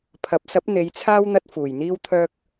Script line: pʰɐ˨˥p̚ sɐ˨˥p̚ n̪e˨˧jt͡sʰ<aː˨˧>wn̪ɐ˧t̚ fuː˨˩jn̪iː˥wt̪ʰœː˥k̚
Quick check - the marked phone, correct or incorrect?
incorrect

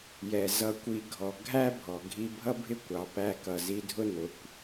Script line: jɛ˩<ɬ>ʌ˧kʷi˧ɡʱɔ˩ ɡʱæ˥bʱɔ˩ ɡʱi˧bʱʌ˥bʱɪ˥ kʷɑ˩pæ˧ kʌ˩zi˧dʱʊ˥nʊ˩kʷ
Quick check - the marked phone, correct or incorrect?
incorrect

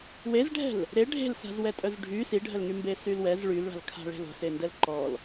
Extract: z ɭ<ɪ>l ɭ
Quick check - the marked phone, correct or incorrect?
incorrect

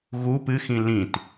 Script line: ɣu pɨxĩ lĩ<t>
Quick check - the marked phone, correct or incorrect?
correct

